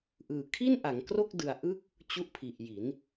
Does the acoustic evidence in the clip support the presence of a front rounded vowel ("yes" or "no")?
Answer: no